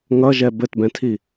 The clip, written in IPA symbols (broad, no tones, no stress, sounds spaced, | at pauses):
ŋ ʌ ʒ ɛ b ɘ t b ɛ̃ tʰ i